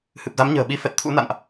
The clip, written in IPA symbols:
h ɨ˨˩ p̚ z a˨˦ m ɲ ə̤ː˨˩ ɓ i˨˦ f ɛ˨˩ t̚ t̪ʰ ṵ˧˥ n a̰˧˨ n ʔ

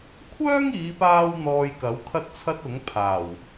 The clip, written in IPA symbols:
kʷʰ œː˥ ŋ iː˨˧ p aː˥ w n̪ ɔː˧ j k ɐ˨˥ w kʰ ɐ˥ t̚ t͡sʰ ɐ˥ t̚ ʊ˨˥ ŋ pʰ aː˨˩ w

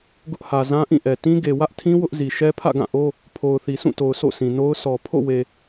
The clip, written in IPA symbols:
ɡ ʊ˦ ʔ h ä˨ z ã˦ ʔ ĩ˦˨ ʔ ɛ˨ t ĩ˦ ɡ e˨ w ä˦ ʔ tʰ ĩ˦ w ʊ˦ ʔ z i˨ ʃ ɛ˦ pʰ ä̰˦˨ ɡ ã˦˨ ʔ o˦ | pʰ o˨ ʊ̯ θ i˨ s ũ˦˨ t o˨ ʊ̯ sʰ o̰˦˨ sʰ ĩ˨ n o˦ ʊ̯ sʰ ɔ˨ pʰ o̰˦˨ w e˨

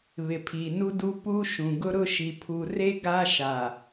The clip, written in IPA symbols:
β ɪ˨ pʰ i˨ n u˦ d u˦ p u˦ ʃ ũ˨ ɡ ʊ˦ ɾ ʊ˦ ʃ i˨ pʰ u˨ r e˦ ɡ a˦ ʃ a˨

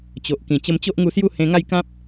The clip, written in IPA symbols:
t͡ɕ o˨ ʔ k ĩ˨˩ t͡ɕ ə˧ m t͡ɕ o˦ ʔ ŋ u˧ s j u˥˧ h ẽ˧ ŋ a˥˧ j k ã˦ p̚

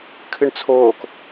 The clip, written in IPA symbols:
kʰ ɨ ɳ t͡sʰ oː k

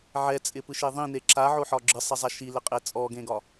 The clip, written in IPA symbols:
ʕ ɛ t͡sʼ ɪ p ɯ ʃ e ðˤ ĩ n e ǁ a ʕ o ħ ɒ ɡ͡ǁ ɯ sˤ ɛ zˤ a ʃ i l ɪ qʼ e t͡sʼ ɔ ɡ ẽ ɡ ɒ

